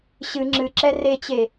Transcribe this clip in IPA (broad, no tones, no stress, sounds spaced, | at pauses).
ɕ ɨ ŋ͡ǁ ɨ ǁ ɛ r e t͡ɕ e